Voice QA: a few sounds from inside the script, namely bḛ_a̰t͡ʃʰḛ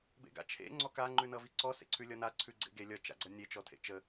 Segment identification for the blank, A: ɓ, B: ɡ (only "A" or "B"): B